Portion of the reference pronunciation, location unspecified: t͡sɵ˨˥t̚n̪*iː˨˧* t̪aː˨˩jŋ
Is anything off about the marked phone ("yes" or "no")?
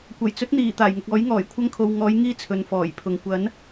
yes